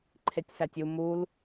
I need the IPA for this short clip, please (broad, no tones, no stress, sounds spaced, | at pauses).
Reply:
ǃʰ e tʲ s æ tʲ u m u l